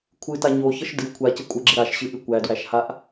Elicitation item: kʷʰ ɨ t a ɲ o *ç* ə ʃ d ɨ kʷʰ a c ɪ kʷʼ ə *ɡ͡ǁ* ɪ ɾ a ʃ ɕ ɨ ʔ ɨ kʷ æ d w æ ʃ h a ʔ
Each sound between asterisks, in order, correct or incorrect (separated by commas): correct, correct